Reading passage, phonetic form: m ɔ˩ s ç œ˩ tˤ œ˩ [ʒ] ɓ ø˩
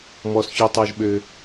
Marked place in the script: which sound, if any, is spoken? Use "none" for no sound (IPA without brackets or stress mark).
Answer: ʒ